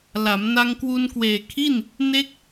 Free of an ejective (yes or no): yes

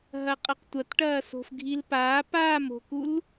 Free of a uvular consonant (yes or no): no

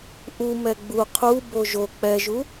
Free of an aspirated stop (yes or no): no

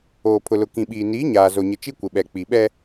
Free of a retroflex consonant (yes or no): yes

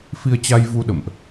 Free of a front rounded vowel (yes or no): yes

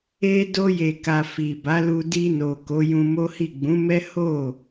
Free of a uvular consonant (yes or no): yes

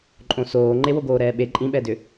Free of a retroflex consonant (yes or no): yes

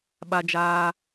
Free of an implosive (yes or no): no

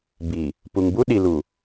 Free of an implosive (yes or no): no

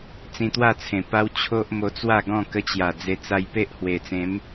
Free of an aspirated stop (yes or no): no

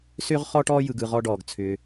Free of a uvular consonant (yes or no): no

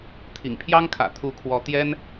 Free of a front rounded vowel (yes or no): yes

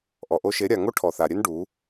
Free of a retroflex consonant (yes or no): no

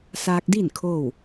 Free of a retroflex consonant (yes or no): yes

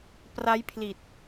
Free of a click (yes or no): yes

